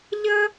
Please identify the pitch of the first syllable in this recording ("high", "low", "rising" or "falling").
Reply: high